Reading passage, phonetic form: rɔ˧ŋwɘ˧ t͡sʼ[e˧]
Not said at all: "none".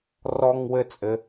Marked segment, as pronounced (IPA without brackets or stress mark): ɘ˧